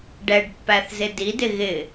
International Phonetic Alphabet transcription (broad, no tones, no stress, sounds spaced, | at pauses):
ɖ ɛ ɖ pː æ θ z ɪ d i d ɪ ɣ ɪ